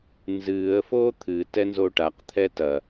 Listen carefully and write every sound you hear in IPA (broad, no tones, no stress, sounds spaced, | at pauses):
n z ɨː ə̯ f o t̪ʰ ɨ t ɛ n z o ʈ a q t̪ʰ ɛ t ɐ